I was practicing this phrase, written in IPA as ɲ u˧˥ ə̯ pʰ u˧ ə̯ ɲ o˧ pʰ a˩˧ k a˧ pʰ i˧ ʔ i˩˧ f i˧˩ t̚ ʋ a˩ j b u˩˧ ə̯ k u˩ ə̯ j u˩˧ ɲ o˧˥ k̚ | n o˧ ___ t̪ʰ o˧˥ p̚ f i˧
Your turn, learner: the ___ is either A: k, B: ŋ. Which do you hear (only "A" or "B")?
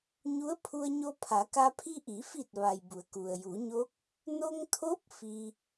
B